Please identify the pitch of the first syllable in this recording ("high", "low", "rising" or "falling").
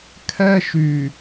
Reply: high